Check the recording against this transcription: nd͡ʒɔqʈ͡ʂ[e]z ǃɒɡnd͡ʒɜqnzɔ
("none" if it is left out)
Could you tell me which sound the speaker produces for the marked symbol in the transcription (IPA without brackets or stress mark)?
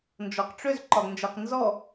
ø